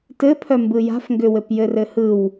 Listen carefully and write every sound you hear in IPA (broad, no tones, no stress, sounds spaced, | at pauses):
t ɘ pʰ œ m b ɯ j a̤ f ŋ ɡ ʏ w ɘ p j ɘ r ɘ h ɯ w